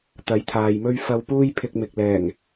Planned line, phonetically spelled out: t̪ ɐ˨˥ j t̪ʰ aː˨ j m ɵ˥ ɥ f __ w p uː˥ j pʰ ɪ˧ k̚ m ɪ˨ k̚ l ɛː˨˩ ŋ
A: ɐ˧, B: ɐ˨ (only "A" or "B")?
A